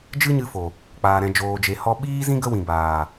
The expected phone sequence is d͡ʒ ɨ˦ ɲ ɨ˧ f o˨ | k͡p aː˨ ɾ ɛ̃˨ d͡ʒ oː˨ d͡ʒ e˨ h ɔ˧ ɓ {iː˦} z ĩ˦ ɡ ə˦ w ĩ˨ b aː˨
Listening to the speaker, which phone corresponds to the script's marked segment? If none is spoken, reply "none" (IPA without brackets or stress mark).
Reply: iː˦